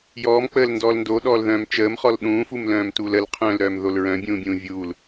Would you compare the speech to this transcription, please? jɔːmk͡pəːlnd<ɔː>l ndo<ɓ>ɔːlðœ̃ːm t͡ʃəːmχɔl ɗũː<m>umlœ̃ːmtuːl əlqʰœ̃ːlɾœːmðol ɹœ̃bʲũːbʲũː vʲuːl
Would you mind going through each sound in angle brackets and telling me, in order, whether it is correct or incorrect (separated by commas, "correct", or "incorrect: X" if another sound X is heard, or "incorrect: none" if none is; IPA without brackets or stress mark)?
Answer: correct, incorrect: ɗ, incorrect: f